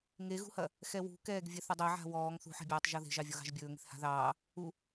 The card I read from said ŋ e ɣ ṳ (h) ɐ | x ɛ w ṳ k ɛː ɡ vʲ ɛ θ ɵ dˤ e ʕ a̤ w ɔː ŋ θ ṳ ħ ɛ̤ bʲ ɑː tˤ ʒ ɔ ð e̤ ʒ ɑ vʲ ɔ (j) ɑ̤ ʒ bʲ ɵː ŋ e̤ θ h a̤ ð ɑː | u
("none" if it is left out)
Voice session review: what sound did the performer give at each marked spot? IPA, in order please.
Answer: h, ɣ

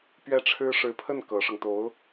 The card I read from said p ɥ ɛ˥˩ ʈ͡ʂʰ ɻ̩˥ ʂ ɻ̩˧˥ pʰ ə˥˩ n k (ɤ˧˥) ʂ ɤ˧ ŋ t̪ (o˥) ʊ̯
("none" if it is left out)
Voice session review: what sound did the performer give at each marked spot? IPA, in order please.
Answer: ɤ˧˥, o˧˥

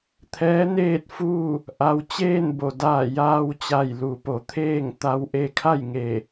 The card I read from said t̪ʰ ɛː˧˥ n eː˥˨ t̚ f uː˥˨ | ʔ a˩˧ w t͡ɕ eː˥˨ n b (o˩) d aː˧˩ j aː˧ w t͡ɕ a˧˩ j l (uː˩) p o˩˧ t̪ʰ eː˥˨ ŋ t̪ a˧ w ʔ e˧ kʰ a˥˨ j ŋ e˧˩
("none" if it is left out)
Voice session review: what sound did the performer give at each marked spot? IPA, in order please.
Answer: o˩, u˩

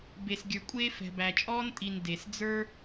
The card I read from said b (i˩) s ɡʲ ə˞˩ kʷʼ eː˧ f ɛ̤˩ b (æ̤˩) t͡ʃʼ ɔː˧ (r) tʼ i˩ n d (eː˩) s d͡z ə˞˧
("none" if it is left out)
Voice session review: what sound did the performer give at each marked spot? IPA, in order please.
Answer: e˩, æ˩, n, e˩

